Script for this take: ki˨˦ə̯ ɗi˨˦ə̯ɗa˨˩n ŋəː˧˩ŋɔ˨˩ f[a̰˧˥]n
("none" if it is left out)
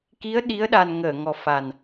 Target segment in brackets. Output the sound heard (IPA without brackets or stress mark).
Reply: a˨˩